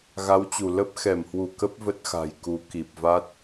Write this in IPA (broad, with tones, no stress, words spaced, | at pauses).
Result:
ɣa˨˦wt͡ɕu˧˩ lə˦˥p̚xɛ˧˩mhwu˧˩ kə˦˥p̚ və˦˥t̚xa̤˨˩jku˨˦ ki˨˩p̚va˦˥t̚